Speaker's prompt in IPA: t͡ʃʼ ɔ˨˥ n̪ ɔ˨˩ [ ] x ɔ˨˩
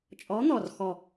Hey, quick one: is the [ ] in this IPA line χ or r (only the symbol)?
r